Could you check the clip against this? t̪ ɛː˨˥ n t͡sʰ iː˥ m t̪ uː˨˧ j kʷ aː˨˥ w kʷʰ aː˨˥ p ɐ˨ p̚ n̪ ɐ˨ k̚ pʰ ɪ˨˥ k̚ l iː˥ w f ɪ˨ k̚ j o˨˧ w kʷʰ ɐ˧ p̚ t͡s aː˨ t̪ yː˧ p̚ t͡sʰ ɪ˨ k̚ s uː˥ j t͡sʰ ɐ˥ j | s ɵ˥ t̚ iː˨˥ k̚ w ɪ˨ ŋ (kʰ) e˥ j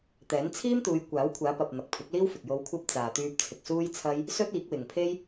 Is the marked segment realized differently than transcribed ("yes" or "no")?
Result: yes